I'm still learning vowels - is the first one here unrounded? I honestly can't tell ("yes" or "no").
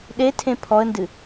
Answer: yes